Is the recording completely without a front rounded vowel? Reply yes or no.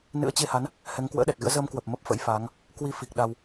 yes